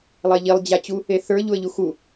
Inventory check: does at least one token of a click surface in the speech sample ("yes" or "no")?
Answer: no